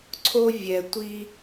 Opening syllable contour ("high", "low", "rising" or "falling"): high